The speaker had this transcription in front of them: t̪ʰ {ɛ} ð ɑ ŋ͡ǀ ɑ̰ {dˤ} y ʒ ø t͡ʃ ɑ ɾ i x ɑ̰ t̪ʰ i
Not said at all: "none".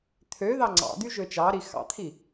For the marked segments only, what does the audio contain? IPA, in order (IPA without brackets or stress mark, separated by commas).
ø, d̪